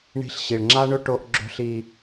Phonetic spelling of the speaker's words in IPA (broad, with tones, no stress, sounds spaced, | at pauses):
ɳ i̤˦ ɬ ɕ i˨ ɭ ŋ͡ǁ a˦ ɳ ɵ˦ ʈ o˦ ʔ ɡ͡ǁ o̤˦ ɬ i˦